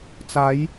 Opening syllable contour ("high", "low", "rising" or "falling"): rising